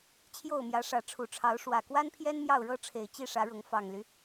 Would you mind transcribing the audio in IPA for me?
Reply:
t͡ɕʰ j o˥˨ ʊ̯ m j ä˨˦ ʂ ä˨˦ ʈ͡ʂʰ u˨˩ ʈ͡ʂʰ ɑ˨˦ ʊ̯ ʂ w ä˨˩ k w a˦ n pʰ j ɛ˦ n m j ɑ˥˨ ʊ̯ ɻ ɤ˦ ʈ͡ʂʰ e˨˩ ɪ̯ t͡ɕ i˥˨ ʂ ä˨˦ ɻ ʊ˨˦ ŋ f ɑ˨˩ ŋ l y˦

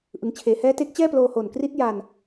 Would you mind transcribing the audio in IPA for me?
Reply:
ʔ ɯ˩˦ ŋ t͡ɕʰ eː˩˦ h ɛː˦˥ t eː˦˥ k̚ t͡ɕ ɛː˥˩ p l oː˧ h o˨˩ n k r i˦˥ t̚ j a˧ n

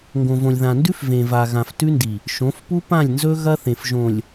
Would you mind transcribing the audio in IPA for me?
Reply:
ŋ ɡ õ˨ v õ˨ lʲ ð ã˨ n d ʉ˦ f v ẽ˨ v a˨ ɣ ã˨ f t ʉ˦ n d i˨ | ʃ õ˨˦ f p u˦ p ã˦˨ lʲ n z ɵ˦ ɣ ɐ˦ θ ẽ˨ f ʒ õ˨ lʲ

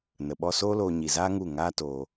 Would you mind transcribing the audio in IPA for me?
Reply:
n ə˨ ɓ ɔ˧ s oː˦ l oː˧ ɲ i˨ z aː˦ ŋ u˦˨ ŋ aː˦ t oː˧

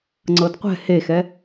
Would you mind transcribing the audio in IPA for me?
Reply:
ŋ͡ǀ ɤ d qʷ ɛ̤ h e x ɛ

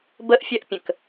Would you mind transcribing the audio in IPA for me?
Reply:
b ə ʔ fʲ ɐ ʔ pʲ ə̃ k

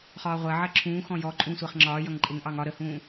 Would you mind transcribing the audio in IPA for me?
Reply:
χ ɒː ʁʷ ɜ ʕ ɜ ǁʰ ũː x ɔ̃ j ɔ ǃʼ ũ sʷ ɜ χ ŋ͡ǁ ɒː j ʌ ŋ ǃʼ ɪ ŋ ʔ ɑ ŋ ɒ ɾ ə h ũː

